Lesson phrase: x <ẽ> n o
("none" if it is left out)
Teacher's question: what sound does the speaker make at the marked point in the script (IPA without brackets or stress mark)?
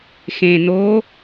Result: ẽ